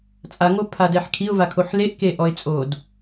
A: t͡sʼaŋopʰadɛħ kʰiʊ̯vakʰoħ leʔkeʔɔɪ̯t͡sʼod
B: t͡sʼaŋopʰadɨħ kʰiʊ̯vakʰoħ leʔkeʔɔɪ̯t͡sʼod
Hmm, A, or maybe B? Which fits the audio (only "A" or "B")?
A